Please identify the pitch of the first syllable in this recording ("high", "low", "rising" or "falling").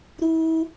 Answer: high